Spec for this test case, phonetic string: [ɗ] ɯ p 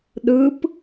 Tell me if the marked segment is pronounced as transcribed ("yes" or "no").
yes